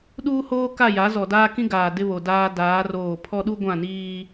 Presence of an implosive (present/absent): present